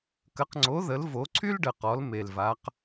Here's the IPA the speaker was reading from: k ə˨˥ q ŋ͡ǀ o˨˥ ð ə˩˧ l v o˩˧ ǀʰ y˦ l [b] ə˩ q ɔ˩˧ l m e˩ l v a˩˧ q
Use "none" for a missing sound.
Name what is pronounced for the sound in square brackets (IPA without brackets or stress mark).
ɖ